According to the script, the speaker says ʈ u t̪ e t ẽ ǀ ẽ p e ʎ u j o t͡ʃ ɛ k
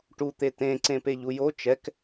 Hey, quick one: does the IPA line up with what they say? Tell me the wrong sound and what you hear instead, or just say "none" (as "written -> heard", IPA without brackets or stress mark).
none